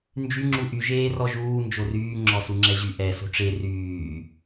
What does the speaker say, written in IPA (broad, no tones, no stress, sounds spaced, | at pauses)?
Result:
n d͡ʒ y ŋ͡ǁ u ʔ y ʒ eː r ɔ ʒ uː n d͡ʒ o r yː ŋ͡ǁ ɔ s u ŋ͡ǁ ɛ ʑ y ʔ ɛ s o̤ ʈ͡ʂ e r yː